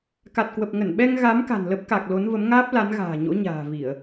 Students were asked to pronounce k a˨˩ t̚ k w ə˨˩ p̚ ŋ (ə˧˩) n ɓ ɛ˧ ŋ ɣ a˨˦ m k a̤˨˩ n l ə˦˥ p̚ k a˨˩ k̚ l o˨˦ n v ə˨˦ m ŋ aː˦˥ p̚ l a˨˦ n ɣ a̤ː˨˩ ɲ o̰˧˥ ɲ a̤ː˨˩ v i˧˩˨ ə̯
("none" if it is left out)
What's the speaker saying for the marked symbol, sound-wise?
ə˧˩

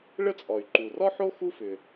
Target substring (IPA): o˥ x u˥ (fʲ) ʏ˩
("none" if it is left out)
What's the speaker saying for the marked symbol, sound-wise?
f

